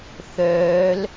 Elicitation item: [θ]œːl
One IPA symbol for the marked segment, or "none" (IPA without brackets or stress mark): θ